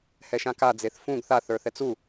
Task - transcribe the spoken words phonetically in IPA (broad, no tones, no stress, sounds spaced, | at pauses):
h ɛ ʃ ã k a d͡z e θ f ũ ɡ θ a θ ə˞ θ ɛ t͡s u